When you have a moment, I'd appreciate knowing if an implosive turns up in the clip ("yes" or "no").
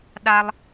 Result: yes